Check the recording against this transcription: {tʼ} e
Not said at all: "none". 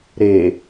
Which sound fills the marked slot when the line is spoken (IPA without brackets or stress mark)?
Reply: ɾ